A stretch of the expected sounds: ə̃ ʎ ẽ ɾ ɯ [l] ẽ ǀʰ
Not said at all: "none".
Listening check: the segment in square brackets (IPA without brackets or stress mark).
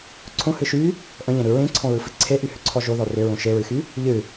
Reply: ɹ